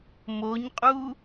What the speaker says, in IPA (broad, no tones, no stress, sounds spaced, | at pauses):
m o ɲ qʼ u